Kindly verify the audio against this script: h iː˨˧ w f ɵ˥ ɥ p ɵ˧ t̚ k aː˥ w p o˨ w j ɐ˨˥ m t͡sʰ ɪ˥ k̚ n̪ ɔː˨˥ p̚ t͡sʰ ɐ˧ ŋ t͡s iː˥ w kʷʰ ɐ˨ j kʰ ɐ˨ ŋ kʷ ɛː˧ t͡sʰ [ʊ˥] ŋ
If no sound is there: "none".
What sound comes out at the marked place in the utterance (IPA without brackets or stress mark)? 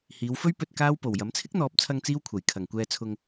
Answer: ʊ˧